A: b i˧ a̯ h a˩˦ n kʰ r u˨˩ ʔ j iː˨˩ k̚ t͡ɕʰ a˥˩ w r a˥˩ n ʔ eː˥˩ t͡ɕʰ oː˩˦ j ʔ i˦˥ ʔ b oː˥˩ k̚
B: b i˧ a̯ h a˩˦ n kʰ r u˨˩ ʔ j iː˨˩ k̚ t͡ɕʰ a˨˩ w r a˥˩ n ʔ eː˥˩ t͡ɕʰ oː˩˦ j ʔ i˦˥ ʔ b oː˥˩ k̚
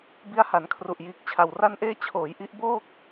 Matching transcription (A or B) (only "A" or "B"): B